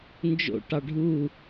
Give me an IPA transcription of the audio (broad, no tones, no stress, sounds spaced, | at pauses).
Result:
n d͡ʒ o̰ ʈ ɑ ɖʱ u